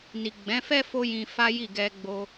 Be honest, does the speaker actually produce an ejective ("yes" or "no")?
no